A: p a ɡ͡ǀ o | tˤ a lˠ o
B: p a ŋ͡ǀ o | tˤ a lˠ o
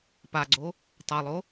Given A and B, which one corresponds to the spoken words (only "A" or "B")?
A